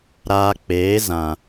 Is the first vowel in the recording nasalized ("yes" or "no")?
no